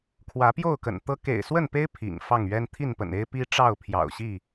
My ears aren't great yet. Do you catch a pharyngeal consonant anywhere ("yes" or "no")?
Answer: no